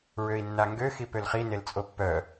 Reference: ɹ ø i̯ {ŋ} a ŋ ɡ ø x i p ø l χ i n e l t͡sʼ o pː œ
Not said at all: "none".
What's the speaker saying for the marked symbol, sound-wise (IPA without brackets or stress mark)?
nː